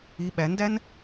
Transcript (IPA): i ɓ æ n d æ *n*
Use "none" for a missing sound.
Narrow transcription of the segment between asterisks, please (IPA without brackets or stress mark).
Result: n